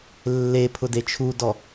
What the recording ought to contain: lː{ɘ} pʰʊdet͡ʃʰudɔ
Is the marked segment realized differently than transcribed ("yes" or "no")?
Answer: yes